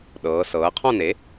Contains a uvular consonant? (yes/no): yes